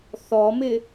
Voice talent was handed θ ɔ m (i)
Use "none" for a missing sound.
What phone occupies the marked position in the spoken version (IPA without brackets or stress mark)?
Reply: ɪ